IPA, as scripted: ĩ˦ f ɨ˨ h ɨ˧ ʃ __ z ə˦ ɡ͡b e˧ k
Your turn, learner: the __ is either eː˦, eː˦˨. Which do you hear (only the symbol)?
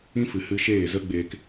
eː˦˨